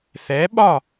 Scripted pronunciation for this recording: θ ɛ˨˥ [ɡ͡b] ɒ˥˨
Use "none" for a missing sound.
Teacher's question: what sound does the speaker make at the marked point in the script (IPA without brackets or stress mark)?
ɓ